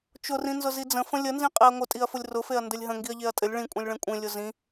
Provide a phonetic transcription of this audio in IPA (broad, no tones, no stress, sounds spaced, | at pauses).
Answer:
t͡ʃ ʊ r ĩ n z ʊ z i d͡z ə̃ f ə̃ lʲ ə n z ĩ qʼ e ɐ̯ ŋʷ ə tʼ i ɐ̯ f ʊ lʲ r ʊ f e ɐ̯ n d ɘ lʲ ɦ ə̃ ŋ ɡ i ɐ̯ ʎ e ɐ̯ tʼ ɘ lʲ ɭ ĩ kʷʼ ĩ lʲ ɭ ẽ kʷʼ ẽ lʲ ʊ z ĩ